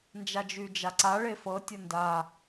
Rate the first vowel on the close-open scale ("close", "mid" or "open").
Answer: open